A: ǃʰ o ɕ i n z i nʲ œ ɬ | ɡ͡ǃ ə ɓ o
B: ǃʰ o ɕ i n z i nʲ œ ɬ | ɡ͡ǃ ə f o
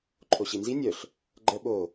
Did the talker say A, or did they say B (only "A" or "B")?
A